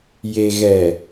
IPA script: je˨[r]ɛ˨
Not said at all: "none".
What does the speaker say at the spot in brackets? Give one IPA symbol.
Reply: ɣ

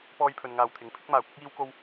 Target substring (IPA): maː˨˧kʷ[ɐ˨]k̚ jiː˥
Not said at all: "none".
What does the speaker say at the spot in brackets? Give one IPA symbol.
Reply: ɐ˥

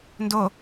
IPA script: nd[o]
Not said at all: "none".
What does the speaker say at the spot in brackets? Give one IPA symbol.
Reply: o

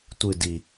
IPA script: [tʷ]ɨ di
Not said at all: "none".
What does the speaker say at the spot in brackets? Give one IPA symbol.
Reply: tʷ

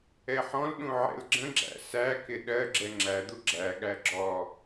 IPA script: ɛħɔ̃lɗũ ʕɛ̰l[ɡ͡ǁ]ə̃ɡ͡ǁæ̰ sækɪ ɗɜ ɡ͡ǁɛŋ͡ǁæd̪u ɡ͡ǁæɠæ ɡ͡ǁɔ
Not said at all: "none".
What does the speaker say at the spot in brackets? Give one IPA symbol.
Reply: ɡ͡ǁ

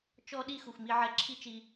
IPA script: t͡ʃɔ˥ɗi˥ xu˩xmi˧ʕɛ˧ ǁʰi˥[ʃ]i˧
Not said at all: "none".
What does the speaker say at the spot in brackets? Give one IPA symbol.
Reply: t͡ʃ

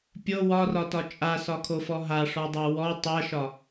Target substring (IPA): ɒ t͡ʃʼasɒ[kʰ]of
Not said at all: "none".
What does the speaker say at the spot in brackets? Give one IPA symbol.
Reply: kʰ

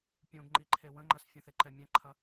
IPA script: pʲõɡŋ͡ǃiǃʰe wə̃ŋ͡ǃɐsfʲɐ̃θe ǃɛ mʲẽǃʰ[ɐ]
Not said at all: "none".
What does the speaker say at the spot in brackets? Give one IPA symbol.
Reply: ɐ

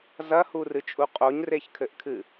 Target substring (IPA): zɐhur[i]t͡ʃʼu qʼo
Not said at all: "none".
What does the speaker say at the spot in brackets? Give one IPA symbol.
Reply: ɨ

